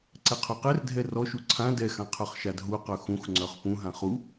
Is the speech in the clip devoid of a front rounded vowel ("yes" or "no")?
no